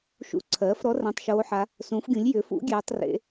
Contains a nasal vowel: yes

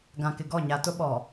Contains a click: no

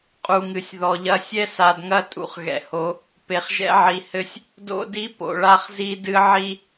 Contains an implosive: no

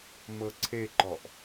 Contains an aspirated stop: yes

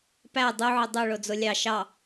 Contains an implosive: no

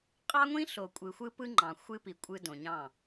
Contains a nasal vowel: yes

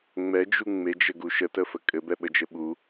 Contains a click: no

